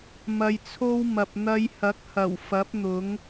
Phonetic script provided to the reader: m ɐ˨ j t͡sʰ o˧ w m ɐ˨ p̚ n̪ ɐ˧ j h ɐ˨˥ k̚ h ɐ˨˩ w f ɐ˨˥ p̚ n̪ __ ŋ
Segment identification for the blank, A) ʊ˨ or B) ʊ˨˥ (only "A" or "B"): B